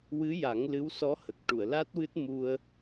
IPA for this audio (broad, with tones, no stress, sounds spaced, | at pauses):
w ɨ˧˥ j a˨˩˦ ŋ l ɨ˧˥ w s ɔ˧˥ h ə˨˩ k̚ ʈ u˨˩˨ ə̯ l a˦˥ t̚ w ɨ˦˥ t̚ m u˧ ə̯